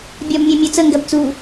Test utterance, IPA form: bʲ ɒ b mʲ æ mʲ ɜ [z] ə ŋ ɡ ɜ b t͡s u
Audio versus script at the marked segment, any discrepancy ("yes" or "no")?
yes